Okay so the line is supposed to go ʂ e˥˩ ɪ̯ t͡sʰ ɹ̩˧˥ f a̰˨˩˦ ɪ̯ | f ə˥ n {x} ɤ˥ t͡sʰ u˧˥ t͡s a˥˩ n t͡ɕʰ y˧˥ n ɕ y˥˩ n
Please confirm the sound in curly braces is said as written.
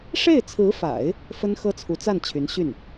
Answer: yes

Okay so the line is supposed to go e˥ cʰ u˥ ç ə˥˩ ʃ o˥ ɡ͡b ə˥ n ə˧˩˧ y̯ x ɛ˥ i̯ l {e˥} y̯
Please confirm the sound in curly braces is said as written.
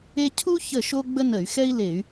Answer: no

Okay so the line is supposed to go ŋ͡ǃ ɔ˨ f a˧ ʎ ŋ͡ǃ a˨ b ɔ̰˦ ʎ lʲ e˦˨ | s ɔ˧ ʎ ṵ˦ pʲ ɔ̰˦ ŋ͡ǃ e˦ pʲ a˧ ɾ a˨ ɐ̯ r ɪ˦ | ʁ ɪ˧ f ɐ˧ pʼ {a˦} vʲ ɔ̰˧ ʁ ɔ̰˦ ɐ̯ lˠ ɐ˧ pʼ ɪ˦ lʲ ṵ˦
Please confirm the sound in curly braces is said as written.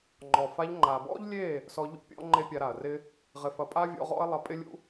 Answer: yes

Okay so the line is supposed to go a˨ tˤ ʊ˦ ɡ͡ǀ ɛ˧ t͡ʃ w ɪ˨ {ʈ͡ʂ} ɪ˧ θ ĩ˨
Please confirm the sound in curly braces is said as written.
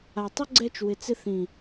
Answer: no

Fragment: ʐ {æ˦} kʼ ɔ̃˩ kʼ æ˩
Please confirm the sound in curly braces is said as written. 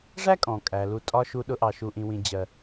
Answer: no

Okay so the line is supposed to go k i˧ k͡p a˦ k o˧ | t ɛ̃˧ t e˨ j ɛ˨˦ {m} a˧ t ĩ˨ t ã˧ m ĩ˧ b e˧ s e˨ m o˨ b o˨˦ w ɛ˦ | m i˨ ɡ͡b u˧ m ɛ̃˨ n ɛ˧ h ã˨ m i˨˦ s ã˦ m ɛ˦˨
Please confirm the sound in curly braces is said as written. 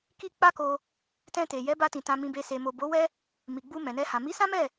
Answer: no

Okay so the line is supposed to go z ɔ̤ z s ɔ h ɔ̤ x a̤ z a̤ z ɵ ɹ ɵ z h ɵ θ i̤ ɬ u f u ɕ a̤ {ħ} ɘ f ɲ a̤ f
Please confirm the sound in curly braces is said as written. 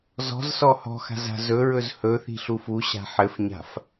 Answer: yes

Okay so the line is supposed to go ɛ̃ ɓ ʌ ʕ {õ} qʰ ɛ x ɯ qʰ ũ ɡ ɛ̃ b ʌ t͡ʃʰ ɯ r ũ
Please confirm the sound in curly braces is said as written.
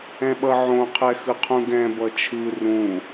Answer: yes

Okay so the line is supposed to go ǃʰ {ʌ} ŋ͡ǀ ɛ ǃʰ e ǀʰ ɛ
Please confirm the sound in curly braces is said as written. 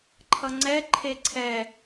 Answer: yes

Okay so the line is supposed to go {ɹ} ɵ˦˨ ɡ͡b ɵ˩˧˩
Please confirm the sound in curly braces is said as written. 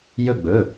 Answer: no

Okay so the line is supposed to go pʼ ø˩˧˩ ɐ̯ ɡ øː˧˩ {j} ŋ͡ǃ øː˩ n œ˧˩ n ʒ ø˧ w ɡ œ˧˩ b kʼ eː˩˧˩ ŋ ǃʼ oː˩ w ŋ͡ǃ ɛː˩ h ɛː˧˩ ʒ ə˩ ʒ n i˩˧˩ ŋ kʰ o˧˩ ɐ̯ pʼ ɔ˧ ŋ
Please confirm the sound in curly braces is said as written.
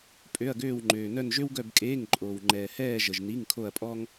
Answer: no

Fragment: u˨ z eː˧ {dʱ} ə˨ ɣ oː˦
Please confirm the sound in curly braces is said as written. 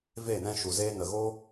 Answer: no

